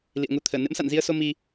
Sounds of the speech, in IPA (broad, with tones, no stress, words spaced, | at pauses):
lḭ˧˨ə̯ŋu˧t̪ʰəː˧˩ nɨ̰˧˥msa̰˧˨nzi˧ə̯so˧ mi˧